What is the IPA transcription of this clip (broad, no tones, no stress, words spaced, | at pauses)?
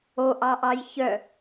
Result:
oʔɑʔɑj çœ